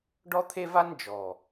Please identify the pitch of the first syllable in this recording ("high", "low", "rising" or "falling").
high